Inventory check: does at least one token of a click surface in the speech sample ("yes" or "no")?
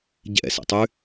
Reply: no